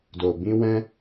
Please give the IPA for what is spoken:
d o˨ b ĩ˧ w ɛ̃˧

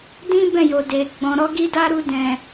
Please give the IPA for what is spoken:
d ĩ˦ b ɛ̃˦˨ j o˨ d e˨ ɡ͡b ɔ̃˨ ɾ ɔ˧ ɡ i˦ d a˦ ɾ u˧ d ɛ̃˨

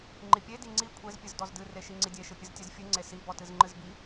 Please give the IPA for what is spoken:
ŋ͡ǃ i pʲ e d i ŋ͡ǀ i kʷʰ e z pʲ ɨ z d ɔ z d ɨ r e ʃ i ŋ͡ǀ i dʲ e ʃ ɨ pʲ ɨ z tʲ e z fʲ ɨ ŋ͡ǀ e s i b ɔ t ɨ z ŋ͡ǃ ɨ z b i

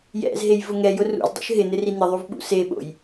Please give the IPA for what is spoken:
j ɛ̰ z ɦ e j v ʊ ŋ ɛ j ʊ r ṵ z dˤ ṵ ʃ ɦ ɪ n ɪ r i n̪ ɪ ðˤ u v ɓ ṵ s e ɓ o̰ j

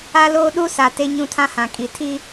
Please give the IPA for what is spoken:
a˦ l oː˦ ɗ u˦ s a˨ t e˦ ɲ ũ˦ tʰ ã˦ h ã˨ kʼ i˨ tʰ i˦

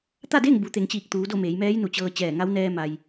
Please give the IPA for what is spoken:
t̪ a˥˨ d e˥˨ ŋ b u˩˧ t̪ e˩˧ ŋ t͡ɕ iː˧˩ k̚ t̪ uː˩˧ d o˥˨ m eː˩˧ j m ɛː˧˥ j n u˩ t͡ɕ ɤː˧ t͡ɕ ɛː˧˩ ŋ a˧˥ w n ɛː˧ m a˩ j

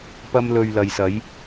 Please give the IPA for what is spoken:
p ɐ˥ m l ɵ˧ ɥ l ɐ˨ j s ɐ˨˥ j

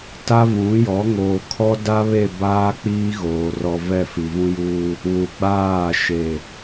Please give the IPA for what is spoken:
t a˦ v ũ˨˦ j ɔ˨˦ ŋ oː˨ kʰ ɔ˦ d a˦ β e˦˨ b aː˦ k͡p iː˦ ɣ oː˨ r ɔ˨ v ɛ˦˨ f i˨ v ũ˦ j uː˦ | w u˨ ɡ͡b aː˦˨ ʃ e˨

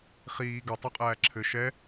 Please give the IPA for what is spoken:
χ iː ɡ ɘ tˤ u qʼ æː ǁʰ ɘ ʃ ɛ

